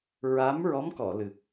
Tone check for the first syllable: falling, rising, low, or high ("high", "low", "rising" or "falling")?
rising